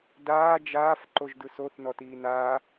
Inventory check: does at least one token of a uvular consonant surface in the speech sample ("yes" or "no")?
no